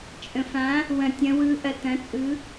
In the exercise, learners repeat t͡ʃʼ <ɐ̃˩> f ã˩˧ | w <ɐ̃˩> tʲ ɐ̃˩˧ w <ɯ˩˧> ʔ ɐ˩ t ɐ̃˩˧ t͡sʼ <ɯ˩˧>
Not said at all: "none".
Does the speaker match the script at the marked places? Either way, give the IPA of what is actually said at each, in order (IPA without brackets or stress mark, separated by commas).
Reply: ə̃˩, ɐ̃˩, ɯ˩˧, ɯ˩˧